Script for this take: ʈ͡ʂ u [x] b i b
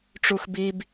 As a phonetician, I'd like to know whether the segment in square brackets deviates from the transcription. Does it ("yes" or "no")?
no